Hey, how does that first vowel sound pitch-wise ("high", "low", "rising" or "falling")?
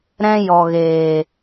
high